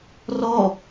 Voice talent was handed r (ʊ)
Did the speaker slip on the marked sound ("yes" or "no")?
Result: yes